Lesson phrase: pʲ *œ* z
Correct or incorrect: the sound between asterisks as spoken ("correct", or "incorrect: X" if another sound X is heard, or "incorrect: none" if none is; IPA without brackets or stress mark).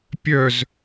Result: correct